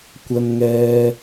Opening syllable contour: low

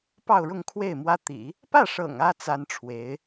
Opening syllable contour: falling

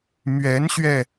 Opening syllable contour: rising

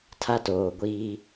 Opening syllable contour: high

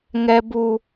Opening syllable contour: high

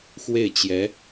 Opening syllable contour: falling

